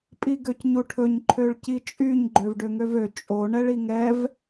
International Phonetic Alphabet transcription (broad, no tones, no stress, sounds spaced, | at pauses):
pʼ i ɡ ø c ɲ u ʈʰ ɵ ɲ ǃʰ ø ɭ c i t͡ʃʼ y ɲ ɡ͡ǃ ø v ɖ ø ŋ ø v ø t͡ʃʼ o ɳ ɛ ɭ i ŋ ɛ v